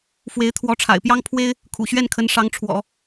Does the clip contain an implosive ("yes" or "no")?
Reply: no